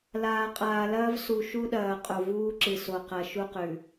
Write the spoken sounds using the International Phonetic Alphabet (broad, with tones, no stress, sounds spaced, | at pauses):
l aː˨ qʼ aː˨ l ɐː˦ v s u˨ ʃ u˦ ɗ ɐː˨ qʼ o˨ v uː˦ ǁ ɨ˨ s o˨ q ɐ˨ ʃ u˦ q ʉ˨